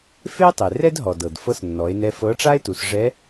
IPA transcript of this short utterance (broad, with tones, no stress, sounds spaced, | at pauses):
f e˥ tˤ e˩ r ɛ˥ d ɦ ɔ˩ d ɤ˩ d f ɤ˧˥ s nː ɔ˩˧ e̯ n ɛ˧ f ɤ˧˥ ʈ͡ʂ a˥ e̯ t u˩˧ s ʐ ɛ˧˥